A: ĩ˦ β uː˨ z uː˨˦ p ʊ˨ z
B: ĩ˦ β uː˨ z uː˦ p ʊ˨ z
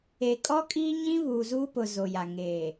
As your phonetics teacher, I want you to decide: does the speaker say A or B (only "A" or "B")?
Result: B